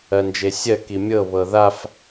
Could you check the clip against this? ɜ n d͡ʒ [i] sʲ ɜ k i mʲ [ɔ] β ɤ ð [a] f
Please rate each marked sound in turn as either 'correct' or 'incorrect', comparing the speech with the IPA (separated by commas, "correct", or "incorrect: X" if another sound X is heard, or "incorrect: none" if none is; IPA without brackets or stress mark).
incorrect: e, incorrect: ɤ, correct